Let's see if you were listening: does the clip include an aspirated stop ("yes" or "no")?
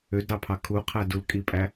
yes